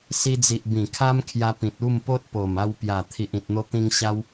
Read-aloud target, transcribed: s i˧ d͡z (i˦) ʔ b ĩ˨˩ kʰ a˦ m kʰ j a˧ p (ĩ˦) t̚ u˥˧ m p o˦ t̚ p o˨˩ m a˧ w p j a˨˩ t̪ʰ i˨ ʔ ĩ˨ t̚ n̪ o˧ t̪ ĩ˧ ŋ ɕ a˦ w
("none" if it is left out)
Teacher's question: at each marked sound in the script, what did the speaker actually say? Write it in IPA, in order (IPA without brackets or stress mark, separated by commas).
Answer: i˨, ĩ˨